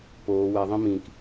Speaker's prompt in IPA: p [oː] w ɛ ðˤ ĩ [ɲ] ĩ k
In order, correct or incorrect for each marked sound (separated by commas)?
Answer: correct, incorrect